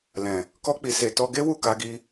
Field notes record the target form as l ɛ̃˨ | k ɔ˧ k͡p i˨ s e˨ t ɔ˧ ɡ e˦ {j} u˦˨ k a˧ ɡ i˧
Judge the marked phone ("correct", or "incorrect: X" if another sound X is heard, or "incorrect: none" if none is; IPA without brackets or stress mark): incorrect: w